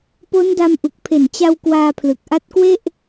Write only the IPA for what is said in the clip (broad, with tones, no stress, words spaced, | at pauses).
po˦˥nda˧mʔu˨˩k̚ pʰe˨˩nt͡ɕa˧w kwaː˧pʰlɯ˨˩k̚ʔa˦˥t̚kwe˥˩ʔ